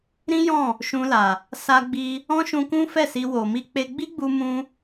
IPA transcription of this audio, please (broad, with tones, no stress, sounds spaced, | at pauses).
ɾ ĩ˦ j ɔ̃˦˨ | ʃ ũ˧ l a˨ | s a˧ ɡ͡b i˧ | ɔ̃˦ ʃ ũ˧ k ũ˦ f ɛ˦˨ s i˧ w o˨ m i˧ k͡p e˧ ɡ͡b i˦ ɡ͡b u˧ m ũ˧